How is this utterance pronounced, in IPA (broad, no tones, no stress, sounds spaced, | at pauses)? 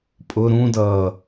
pʼ ʊ ɾ ũ d ʌː